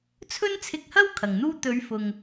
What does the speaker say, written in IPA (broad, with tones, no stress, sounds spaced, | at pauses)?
t͡sʰ ɵ˥ n t͡sʰ ɪ˧ k̚ h ɐ˥ w kʰ ɐ˨ ŋ n̪ uː˥ t̪ ɵ˨˧ ɥ f ʊ˨ ŋ